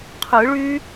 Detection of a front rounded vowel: present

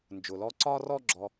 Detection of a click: present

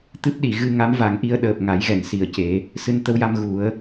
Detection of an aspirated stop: absent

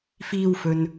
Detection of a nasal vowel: absent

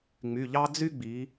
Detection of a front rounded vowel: present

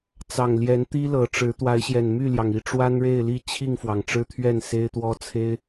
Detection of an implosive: absent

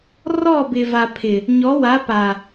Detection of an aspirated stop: present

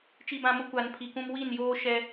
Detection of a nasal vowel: present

